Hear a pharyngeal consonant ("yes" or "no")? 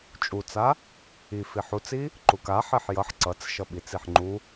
yes